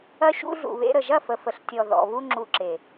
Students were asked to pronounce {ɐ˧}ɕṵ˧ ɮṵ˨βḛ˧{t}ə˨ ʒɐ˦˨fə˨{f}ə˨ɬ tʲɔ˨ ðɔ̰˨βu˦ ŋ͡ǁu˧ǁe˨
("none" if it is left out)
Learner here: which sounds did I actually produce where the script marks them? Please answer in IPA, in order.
ɐ˧, ɾ, f

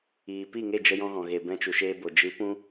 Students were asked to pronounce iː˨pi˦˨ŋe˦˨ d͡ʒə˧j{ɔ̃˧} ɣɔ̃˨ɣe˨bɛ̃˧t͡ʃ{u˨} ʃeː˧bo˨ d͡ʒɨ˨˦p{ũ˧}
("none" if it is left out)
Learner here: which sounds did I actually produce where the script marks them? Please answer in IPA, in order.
ɔ̃˧, u˨, ũ˧

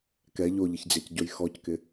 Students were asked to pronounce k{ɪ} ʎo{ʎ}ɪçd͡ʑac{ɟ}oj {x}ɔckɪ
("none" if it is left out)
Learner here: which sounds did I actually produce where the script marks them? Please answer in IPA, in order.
ɛ, ʎ, ɟ, x

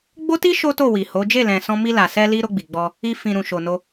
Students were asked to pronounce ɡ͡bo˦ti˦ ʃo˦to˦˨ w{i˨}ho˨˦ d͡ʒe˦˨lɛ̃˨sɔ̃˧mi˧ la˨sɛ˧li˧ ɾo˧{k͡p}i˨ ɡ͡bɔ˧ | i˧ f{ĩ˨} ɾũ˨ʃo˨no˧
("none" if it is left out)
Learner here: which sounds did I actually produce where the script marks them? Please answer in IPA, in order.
i˨, ɡ͡b, ĩ˨

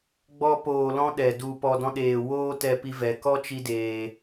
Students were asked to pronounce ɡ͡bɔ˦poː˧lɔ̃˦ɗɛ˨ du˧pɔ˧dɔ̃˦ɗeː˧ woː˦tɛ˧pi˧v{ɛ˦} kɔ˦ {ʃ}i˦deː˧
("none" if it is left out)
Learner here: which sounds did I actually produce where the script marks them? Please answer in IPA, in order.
ɛ˨, t͡ʃ

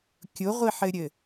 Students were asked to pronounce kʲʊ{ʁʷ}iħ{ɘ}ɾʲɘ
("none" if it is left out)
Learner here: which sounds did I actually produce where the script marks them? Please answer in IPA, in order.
ʁʷ, ɘ

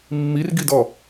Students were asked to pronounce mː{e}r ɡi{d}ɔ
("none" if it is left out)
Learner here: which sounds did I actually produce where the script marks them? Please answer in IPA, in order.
i, d

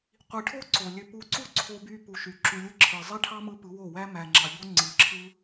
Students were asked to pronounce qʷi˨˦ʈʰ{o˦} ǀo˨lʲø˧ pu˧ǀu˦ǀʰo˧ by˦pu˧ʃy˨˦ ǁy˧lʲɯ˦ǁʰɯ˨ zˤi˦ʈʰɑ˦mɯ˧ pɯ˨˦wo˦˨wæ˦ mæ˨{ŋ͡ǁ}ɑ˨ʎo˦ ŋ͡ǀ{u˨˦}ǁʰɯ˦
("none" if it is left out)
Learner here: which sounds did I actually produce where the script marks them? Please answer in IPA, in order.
o˦, ŋ͡ǁ, ɯ˨˦

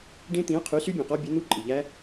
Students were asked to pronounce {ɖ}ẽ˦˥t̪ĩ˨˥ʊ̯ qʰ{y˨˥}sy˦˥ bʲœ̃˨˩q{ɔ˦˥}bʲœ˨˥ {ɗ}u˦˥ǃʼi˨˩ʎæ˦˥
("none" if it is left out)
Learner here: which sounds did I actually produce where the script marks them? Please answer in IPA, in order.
ɖ, y˨˥, ɔ˦˥, n̪

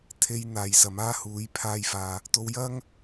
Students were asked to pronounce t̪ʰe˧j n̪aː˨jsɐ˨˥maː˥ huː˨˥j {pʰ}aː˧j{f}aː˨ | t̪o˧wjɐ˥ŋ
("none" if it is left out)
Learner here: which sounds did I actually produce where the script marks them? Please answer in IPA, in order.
pʰ, f

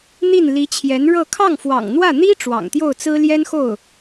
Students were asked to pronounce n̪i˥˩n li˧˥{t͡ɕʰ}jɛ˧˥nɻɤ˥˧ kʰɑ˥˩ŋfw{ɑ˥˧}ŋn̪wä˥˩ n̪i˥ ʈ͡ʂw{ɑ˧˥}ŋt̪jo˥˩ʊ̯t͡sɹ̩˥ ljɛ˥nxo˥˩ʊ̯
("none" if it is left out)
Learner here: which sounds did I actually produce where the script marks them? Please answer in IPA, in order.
t͡ɕʰ, ɑ̰˨˩, ɑ̰˨˩

